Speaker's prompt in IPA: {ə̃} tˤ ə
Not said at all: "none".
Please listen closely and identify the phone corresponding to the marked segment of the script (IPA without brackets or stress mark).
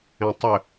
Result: ɛ̃